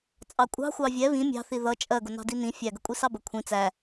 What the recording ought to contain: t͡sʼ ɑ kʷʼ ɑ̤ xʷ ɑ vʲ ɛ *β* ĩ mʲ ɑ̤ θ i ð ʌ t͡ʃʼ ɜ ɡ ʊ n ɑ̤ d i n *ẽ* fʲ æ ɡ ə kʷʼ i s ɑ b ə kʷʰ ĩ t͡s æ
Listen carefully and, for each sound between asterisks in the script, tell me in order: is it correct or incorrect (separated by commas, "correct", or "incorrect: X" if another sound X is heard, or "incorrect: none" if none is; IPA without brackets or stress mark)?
correct, incorrect: ĩ